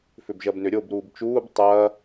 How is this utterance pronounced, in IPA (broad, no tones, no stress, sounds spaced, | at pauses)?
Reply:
f ʏ b ʒ ɐ b n ʏ ɾʲ o b ɾ uː b t͡ʃ uː b tˤ ɐ